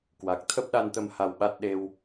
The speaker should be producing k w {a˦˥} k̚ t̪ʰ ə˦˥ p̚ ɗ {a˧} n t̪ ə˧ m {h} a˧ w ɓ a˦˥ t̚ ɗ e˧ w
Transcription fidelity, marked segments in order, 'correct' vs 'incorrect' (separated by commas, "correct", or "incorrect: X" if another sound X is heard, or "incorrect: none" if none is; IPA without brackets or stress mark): incorrect: a˨˩, correct, correct